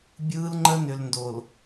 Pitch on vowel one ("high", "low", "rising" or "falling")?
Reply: high